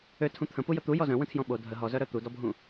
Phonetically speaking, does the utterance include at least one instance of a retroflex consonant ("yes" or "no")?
no